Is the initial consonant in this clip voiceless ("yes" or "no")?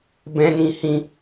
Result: no